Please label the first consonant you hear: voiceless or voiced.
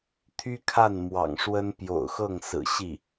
voiceless